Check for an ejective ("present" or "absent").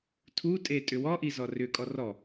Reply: present